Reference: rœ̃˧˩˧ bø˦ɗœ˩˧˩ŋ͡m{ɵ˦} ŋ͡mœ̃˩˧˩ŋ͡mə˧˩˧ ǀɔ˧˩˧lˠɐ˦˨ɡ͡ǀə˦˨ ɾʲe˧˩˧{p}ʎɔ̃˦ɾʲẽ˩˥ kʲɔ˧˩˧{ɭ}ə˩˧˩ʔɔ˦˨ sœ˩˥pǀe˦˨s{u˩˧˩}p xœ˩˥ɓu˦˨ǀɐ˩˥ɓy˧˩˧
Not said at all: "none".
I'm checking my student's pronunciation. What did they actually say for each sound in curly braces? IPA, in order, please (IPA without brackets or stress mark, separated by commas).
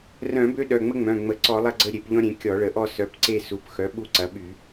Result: ə˦, p, ɭ, u˩˧˩